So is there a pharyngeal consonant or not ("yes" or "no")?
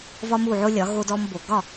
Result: yes